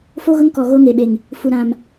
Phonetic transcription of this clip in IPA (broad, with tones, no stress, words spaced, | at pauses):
fo˦ɣʊ˦ŋ kɔ˨ ɣo˦ŋe˨ɓe˨ŋ | fu˨ɾã˨m